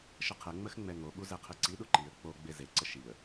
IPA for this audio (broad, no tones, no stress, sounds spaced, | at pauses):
ʃ ə qʰ ɛ ŋ͡m ə x ŋ͡m ɛ ŋ o ɓ u z ɛ qʰ ɪ ǀ i ɗ u ǃ i ə̯ k͡p o ɡ͡b e z e ǀ ə ʃ i ə̯